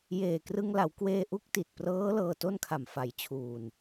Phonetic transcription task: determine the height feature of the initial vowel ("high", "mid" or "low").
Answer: mid